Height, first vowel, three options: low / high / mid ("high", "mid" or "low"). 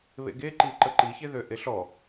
mid